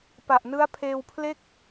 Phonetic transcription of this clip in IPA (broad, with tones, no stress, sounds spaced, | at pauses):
p a˨˩ ʔ n ɯ˦˥ a̯ pʰ eː˧ w pʰ l e˥˩ k̚